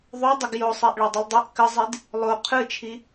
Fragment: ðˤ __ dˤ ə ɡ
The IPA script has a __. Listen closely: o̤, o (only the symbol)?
o